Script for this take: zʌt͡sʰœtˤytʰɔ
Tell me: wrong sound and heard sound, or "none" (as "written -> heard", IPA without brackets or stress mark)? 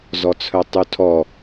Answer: ʌ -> ɔ